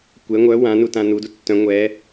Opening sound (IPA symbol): kʷ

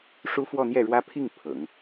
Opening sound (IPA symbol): ʂ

